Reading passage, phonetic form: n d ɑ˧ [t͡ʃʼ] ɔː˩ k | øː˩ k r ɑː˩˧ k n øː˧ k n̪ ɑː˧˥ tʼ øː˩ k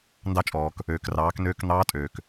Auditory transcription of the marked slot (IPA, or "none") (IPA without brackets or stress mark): t͡ʃʼ